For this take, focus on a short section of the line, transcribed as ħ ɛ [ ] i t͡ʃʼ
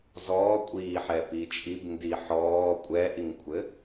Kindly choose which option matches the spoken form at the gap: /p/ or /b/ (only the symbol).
p